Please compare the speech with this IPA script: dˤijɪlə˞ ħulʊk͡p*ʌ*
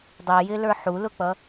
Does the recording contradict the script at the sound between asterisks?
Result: no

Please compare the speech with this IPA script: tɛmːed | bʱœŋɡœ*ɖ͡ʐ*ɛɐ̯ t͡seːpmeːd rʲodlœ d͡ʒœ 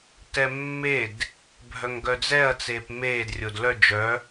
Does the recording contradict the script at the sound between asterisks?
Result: yes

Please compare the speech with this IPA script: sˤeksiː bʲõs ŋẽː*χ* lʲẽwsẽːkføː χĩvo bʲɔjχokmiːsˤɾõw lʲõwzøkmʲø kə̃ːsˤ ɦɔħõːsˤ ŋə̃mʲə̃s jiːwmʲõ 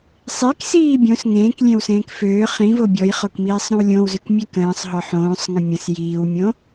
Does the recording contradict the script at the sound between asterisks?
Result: yes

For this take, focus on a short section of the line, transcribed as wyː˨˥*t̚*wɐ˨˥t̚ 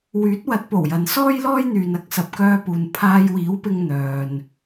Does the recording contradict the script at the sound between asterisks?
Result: no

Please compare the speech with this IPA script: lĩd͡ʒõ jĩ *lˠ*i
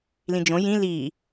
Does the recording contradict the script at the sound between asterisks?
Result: yes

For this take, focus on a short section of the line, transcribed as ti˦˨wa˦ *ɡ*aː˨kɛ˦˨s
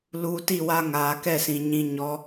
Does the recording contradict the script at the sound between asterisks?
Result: yes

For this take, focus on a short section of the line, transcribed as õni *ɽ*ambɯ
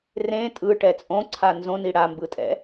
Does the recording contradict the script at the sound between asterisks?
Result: no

